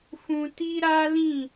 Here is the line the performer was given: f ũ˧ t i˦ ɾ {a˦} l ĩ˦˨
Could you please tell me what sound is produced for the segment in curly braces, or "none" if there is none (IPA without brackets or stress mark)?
a˦